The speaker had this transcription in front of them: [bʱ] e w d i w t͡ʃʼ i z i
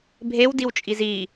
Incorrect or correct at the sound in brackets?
correct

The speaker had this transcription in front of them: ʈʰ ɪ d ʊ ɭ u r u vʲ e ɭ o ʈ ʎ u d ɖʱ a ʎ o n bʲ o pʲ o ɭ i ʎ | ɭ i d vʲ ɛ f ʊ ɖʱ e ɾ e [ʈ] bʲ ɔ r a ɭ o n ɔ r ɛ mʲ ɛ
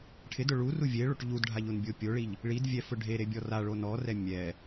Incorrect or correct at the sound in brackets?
incorrect: none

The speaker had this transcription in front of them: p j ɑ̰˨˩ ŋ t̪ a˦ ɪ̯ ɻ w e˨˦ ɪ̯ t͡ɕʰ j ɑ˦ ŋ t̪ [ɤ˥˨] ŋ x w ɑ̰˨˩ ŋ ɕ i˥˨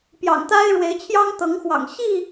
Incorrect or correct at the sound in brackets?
incorrect: ɤ˨˦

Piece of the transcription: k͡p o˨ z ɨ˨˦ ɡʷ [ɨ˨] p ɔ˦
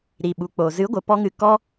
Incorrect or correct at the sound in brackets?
incorrect: ə˨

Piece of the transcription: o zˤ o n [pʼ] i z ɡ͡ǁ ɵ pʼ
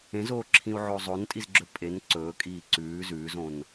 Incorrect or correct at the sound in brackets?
incorrect: tʼ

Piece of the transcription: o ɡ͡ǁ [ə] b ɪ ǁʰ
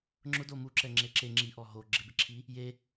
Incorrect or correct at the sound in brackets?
incorrect: ɪ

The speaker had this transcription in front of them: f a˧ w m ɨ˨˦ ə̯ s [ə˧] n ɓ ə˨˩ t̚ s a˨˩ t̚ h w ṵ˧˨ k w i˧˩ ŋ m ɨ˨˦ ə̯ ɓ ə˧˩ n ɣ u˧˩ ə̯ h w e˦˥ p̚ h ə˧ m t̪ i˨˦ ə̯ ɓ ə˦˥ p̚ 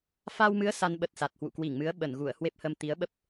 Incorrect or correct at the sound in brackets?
incorrect: a˧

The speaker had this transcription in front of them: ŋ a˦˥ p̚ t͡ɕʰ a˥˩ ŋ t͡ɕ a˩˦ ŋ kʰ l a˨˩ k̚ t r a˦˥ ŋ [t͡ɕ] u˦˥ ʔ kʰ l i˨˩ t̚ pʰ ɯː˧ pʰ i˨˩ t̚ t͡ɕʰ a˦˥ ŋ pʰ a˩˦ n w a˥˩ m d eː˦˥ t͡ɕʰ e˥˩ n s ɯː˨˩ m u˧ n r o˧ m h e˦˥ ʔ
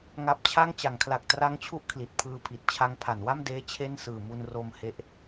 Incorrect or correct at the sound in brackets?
incorrect: t͡ɕʰ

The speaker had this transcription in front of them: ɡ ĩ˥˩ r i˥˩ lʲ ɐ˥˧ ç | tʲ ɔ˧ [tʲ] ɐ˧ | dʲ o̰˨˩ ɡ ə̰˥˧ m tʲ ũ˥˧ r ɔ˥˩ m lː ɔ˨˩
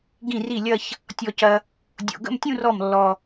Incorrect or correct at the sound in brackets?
incorrect: c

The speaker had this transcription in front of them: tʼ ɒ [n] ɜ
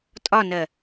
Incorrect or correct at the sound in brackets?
correct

